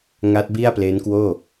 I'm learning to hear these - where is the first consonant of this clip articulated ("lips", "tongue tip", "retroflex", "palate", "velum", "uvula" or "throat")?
velum